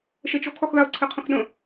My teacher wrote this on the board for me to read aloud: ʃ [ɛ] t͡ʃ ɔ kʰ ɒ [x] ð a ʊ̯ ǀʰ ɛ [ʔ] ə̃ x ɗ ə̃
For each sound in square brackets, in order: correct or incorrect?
correct, correct, incorrect

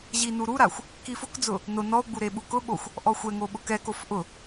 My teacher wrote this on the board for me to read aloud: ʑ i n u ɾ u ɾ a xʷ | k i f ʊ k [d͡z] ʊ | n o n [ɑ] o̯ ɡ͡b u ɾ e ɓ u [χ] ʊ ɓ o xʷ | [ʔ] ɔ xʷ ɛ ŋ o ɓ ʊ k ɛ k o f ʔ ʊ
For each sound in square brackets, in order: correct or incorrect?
correct, incorrect, incorrect, correct

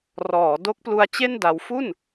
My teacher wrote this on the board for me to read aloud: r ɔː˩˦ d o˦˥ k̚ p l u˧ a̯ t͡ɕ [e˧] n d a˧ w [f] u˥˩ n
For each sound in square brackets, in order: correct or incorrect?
incorrect, correct

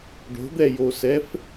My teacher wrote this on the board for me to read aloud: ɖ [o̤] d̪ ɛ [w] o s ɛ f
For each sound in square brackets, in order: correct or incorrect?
correct, incorrect

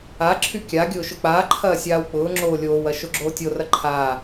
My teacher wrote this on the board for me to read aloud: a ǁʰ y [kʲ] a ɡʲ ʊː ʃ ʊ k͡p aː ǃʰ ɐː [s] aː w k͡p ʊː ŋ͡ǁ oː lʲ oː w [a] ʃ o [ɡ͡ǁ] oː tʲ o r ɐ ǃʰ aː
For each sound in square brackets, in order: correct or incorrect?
correct, incorrect, incorrect, correct

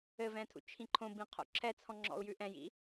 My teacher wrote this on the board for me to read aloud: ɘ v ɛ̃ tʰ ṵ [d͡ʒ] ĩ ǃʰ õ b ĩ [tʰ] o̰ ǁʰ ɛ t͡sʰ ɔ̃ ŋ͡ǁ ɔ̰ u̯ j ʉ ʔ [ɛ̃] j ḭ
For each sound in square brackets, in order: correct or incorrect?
incorrect, incorrect, correct

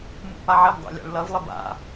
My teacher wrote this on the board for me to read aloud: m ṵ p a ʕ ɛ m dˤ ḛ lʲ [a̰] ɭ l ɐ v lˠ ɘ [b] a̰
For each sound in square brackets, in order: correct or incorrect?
correct, correct

